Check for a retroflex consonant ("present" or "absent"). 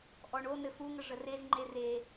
present